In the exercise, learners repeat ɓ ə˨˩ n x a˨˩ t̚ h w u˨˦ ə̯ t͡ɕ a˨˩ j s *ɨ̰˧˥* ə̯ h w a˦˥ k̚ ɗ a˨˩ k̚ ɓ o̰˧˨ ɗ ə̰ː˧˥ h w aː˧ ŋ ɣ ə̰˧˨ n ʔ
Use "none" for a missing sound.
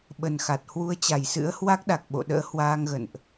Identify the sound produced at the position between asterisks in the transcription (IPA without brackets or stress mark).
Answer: ɨ̰˧˥